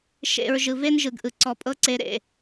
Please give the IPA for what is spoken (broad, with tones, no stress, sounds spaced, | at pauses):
ʃ ḛ˨ ɹ ʒ ɯ˨ v e˦ n ʒ ɯ˨ ɡ ʔ ɯ˨ ǀ ɔ˧ pʼ ɤ˦ ǀ e˧ ɾ ḛ˨